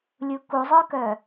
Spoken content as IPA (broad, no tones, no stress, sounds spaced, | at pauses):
lʲ u k u zˤ œ k œ